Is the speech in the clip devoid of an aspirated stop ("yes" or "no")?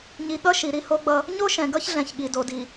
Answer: yes